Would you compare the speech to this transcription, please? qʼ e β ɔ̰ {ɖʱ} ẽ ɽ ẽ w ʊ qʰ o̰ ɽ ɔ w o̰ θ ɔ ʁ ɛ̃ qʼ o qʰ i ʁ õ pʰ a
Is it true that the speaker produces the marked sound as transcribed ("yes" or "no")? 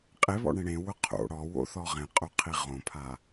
no